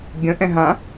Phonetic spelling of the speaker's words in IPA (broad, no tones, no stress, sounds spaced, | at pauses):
ɡʲ ə̃ ʔ ɛ̃ ɦ ã